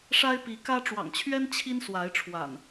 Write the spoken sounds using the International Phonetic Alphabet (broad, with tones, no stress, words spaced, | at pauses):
ʂa˦ɪ̯pi˨˦kä˦ ʈ͡ʂwɑ̰˨˩ŋt͡ɕʰɥɛ˦n t͡ɕʰi˦nswa˨˦ɪ̯ ʈ͡ʂʰwa̰˨˩n